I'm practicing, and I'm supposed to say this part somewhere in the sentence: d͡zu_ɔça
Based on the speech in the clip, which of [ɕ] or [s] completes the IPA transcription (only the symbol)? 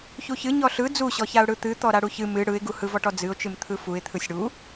ɕ